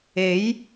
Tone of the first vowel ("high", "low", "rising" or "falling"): rising